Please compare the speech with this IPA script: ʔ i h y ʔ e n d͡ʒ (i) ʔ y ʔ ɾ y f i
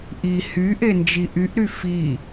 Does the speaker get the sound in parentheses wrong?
no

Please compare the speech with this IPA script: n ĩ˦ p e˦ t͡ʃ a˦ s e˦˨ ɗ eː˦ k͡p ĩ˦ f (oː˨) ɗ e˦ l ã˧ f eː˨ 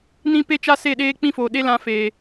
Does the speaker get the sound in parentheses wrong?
no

